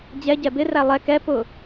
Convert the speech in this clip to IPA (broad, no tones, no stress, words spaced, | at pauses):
d͡ʑɛɟɛ bɪræ lˠɛ kɛ pʊ